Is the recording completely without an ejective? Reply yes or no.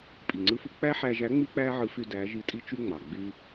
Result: no